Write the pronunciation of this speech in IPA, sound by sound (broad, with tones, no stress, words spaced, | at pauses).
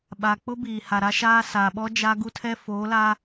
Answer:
ɓa˨k͡pʊ˦ biː˨ ha˨ɾa˦ʃaː˦ saː˨ɓɔ˦ d͡ʒa˦ ɡu˦tʰɛ˦ foː˨˦la˦